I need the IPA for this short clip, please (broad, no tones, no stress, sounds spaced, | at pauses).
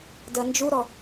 d ɜ n d͡ʒ u ɾ ɔ